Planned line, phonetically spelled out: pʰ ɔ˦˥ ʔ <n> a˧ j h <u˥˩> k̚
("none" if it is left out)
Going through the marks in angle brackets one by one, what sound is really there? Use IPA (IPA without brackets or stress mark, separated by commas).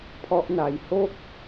n, o˥˩